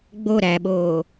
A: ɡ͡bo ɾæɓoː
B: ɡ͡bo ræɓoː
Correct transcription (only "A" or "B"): A